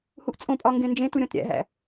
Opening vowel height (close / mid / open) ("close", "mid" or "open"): close